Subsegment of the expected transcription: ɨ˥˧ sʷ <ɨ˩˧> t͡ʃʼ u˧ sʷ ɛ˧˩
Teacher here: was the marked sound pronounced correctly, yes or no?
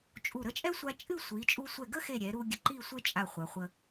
no